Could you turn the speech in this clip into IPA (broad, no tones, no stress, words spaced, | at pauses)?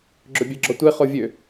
ɡ͡ǁɵbʲɛɡ͡ǁɔtʷe χovʲø